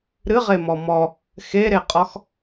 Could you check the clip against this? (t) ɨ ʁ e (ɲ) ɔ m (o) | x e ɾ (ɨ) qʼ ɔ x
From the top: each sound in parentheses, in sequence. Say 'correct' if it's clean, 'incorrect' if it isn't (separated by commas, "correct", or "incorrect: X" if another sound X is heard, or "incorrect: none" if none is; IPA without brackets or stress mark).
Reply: incorrect: ɾ, incorrect: m, incorrect: ɔ, incorrect: e